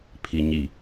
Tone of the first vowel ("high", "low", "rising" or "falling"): low